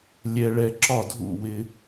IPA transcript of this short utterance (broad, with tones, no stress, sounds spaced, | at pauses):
lʲ ɛ˥ ɭ ɛ˥ ǁ ɒ˥˩ dʱ ṵ˥˩ w ɪ˥